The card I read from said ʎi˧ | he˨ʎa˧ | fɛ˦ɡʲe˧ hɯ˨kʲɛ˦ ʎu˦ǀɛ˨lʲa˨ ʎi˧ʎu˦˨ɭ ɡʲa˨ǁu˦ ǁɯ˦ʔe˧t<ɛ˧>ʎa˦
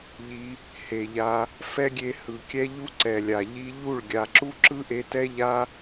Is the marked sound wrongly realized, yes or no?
yes